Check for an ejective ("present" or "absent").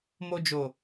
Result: absent